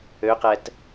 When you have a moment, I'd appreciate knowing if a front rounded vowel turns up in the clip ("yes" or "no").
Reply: yes